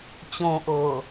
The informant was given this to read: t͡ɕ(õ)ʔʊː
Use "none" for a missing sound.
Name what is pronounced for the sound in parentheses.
õ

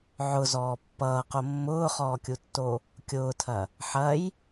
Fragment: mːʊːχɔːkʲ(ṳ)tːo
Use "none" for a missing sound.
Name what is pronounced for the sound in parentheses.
u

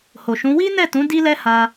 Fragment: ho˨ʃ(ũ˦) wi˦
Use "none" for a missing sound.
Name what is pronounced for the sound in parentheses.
ũ˨˦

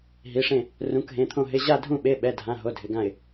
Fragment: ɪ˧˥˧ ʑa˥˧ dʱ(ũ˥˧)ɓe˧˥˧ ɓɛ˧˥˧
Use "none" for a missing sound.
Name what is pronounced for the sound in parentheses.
ũ˥˧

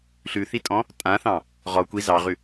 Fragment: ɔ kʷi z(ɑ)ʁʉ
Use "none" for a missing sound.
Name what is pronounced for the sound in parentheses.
ɑ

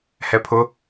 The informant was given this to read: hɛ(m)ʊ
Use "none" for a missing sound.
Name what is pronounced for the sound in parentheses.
pʰ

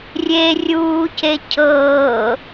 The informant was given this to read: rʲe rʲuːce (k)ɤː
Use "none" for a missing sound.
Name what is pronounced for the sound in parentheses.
cʰ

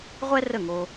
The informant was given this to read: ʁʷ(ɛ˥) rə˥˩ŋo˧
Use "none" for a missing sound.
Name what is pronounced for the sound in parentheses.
ɛ˥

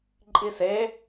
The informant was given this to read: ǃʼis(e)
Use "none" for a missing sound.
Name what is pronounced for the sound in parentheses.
e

